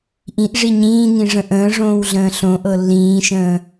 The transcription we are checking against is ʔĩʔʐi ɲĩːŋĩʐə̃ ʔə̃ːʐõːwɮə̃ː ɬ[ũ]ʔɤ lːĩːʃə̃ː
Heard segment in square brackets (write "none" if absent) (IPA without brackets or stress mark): õ